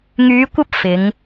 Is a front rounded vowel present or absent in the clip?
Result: present